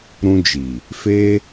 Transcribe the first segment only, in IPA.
ɾ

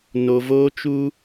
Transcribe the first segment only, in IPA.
n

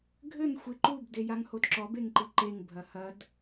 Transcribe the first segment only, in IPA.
ɡʱ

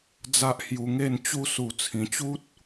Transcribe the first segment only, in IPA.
d͡z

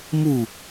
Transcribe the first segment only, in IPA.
m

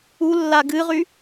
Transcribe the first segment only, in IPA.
u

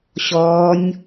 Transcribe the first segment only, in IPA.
ɕ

